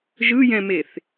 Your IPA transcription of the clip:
ʒ ɯ j ɛ̃ m e θ

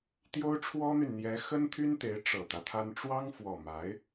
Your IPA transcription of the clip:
t̪ j o˥ ʊ̯ ʈ͡ʂʰ w ɔ˥ n̪ y˨ n n̪ j ɛ˧˥ x ə˥ n t̪ʰ y˥ n t̪ e˧˥ ɪ̯ ʈ͡ʂ ɤ˨˩ t̪ ä˦ t̪ʰ a˥ n ʈ͡ʂ w ɑ˥ ŋ f w ɔ˨˩ m a˧˥ ɪ̯

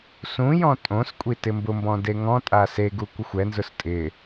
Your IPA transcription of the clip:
s ũ j ɔ̃ tʼ õ s kʷʼ i t ɪ m b ʊ m b ɔ̃ d e ŋ ɔ̃ tʼ a s e ɡ u kʷ ɪ xʷ ɛ n z ʊ s tʼ ɪ

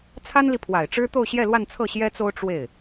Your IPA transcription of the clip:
t͡sʰ a˥ n l i˨ pʰ w a˨˩ ɪ̯ ʈ͡ʂ ɻ̩˥ t̪ o˥˧ ʊ̯ ɕ j ɛ˥˧ l w a˥˧ n t͡sʰ ɤ˥˩ ɕ j ɛ˥ t͡s o˥ ʊ̯ ʈ͡ʂ w e˥˩ ɪ̯

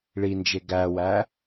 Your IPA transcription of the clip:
ɭ i n d͡ʒ e ɡ æ w æ

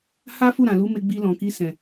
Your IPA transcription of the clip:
h a˦ f u˦˨ ɾ ã˨ l u˨˦ m e˧ ɡ͡b i˧ l ɔ̃˨ k i˧ s ɛ̃˨

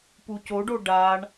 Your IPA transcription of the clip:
p u c o ɖ o ɖ a ɳ

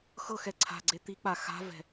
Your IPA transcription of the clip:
x ɤ x ɛ ǀʰ a̤ ɡ͡ǀ e t̪ i k͡p a x a̤ v ɛ̤

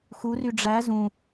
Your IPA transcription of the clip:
x u r y ɖ͡ʐ æ z ũ

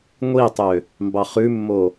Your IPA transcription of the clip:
ŋʷ i tˤ ø | m b ɑ χ ʉ mː o

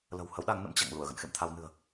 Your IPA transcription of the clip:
l ə̤˨˩ w h ə˨˦ w ɗ a˨˦ ŋ n ə̰˧˥ m t͡ɕ a̰˧˨ ŋ l u˧˩ ə̯ ɣ ə̰˧˨ n x ḛ˧˨ m t̪ʰ a˧ w n ɨ̤˨˩ ə̯

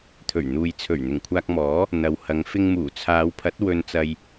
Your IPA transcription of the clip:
t̪ʰ ɵ˨˩ ɥ n̪ uː˨ j t͡sʰ ɵ˨˩ ɥ n̪ ɪ˨˩ ŋ kʷʰ aː˧ k̚ m ɔː˨˥ | n̪ ɐ˨ w h ɐ˨˧ ŋ f ɪ˧ ŋ m uː˨˩ t͡sʰ aː˨˧ w pʰ ɐ˨˥ t̚ w ɵ˧ n t͡s ɐ˧ j

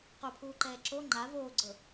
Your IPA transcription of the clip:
q o pʰ uː ǃ ɛː ǁ o ŋ͡ǃ a v oː ɡ͡ǀ ɤ

